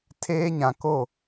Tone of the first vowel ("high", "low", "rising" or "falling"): high